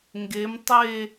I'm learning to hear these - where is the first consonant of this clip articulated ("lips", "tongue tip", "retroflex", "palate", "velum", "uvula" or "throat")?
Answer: velum